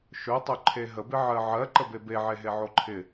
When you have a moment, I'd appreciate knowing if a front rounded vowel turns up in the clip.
yes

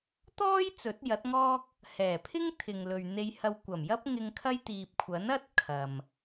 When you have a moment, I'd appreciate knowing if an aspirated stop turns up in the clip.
yes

